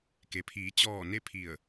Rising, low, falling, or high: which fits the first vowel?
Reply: low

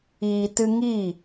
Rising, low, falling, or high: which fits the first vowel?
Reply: low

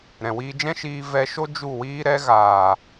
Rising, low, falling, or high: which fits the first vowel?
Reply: low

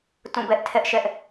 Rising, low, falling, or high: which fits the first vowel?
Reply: falling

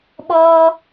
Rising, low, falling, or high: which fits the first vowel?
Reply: high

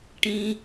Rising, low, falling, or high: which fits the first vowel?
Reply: low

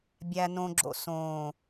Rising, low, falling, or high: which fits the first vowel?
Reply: low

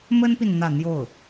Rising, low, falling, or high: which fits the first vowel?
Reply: high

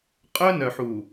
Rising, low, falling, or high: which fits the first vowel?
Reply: high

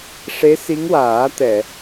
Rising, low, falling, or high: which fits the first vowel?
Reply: rising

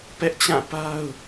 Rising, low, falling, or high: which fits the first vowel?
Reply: high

